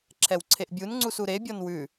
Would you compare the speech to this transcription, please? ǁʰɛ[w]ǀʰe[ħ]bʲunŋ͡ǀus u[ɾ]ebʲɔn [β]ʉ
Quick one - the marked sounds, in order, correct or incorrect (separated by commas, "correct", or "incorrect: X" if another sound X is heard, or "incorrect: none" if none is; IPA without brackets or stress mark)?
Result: correct, incorrect: ʔ, correct, incorrect: w